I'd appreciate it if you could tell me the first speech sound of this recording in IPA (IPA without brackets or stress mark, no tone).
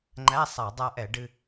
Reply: ŋ͡ǃ